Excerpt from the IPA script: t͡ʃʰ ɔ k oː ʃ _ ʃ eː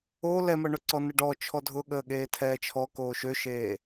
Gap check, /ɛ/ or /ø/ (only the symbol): ø